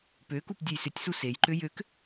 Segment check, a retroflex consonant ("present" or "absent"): absent